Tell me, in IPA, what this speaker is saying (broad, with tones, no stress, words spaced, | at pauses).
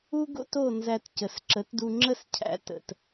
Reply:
u˥ɡo̰˥to˥˩ nzæ˧t cə˩sǁə˩˥tdu˧ ŋ͡ǁə˥˩scʰæ̰˩˥ tə̰˩t